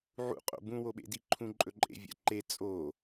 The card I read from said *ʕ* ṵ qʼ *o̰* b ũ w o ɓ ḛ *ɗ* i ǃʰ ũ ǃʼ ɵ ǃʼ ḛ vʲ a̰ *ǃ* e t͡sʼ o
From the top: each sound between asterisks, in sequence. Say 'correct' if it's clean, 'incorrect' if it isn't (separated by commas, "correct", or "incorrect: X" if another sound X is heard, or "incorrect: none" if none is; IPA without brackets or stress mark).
correct, correct, incorrect: d, correct